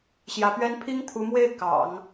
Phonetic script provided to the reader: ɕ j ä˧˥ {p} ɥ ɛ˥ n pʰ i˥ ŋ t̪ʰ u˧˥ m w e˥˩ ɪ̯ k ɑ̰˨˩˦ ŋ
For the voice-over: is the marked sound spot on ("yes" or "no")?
yes